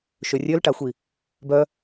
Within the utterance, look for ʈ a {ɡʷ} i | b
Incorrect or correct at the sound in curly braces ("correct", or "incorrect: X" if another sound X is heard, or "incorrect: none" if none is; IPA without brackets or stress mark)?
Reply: incorrect: xʷ